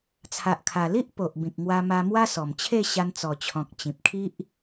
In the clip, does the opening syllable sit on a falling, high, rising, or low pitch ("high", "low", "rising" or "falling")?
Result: low